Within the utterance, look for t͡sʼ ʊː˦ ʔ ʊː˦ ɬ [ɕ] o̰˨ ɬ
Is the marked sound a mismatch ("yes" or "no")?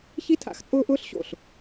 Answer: no